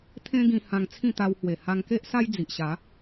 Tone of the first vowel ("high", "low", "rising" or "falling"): high